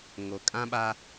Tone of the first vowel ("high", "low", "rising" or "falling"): low